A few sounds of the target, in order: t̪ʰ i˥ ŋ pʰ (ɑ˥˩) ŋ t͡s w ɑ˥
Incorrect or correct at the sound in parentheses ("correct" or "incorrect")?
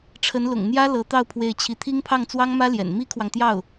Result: correct